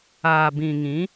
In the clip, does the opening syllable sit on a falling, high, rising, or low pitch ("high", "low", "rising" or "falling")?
low